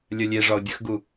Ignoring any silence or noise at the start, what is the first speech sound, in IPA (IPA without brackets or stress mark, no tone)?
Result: lʲ